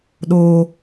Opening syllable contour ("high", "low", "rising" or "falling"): high